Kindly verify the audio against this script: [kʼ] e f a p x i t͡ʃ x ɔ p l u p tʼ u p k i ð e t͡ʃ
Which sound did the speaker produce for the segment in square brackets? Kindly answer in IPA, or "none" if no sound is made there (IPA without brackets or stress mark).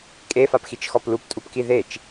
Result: kʼ